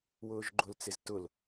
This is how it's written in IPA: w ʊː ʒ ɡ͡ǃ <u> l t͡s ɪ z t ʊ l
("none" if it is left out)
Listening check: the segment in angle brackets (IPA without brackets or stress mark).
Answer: ʊ